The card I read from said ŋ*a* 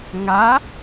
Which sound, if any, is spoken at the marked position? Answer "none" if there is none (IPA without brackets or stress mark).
a